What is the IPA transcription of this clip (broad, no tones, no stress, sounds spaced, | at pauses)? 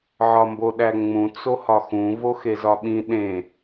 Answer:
ʕ ɒ m b o ɗ æ ŋ͡m ũ t͡s o h ɒ x ũ v o x e z ɒ ɓ ĩ ɗ ẽ